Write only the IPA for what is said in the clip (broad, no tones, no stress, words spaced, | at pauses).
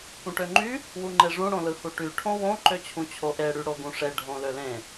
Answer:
pũʈøŋ͡ǃy | wuŋ͡ǃeʐũ ɽõlɯhuʈy ʈʰõwõ ǃøt͡ɕʰũt͡ɕʰoʔe ɽyɽoɡũʂe ɖʱõlølẽ